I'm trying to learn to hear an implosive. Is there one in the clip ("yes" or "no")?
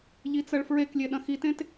yes